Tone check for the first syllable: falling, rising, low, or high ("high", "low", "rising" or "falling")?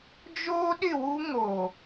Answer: high